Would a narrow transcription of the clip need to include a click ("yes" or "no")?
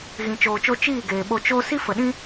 no